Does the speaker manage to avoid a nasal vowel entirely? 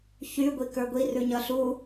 yes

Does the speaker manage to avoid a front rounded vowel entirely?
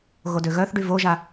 no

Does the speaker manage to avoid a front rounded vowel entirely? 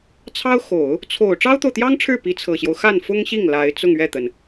yes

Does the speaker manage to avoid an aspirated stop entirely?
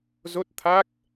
no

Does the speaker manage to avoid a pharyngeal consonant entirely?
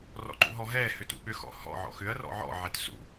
no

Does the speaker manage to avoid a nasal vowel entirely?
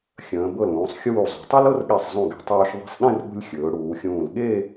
no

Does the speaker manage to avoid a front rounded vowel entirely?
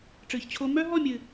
no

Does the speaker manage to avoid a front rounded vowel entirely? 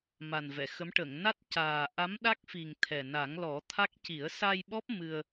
yes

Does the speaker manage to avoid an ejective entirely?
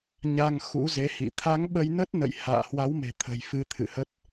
yes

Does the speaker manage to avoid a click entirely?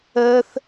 yes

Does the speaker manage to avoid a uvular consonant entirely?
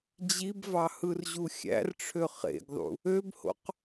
no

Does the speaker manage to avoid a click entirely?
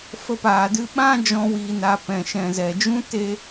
yes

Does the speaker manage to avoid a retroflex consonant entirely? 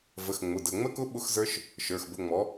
yes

